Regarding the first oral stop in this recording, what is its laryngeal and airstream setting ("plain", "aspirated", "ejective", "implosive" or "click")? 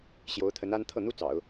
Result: aspirated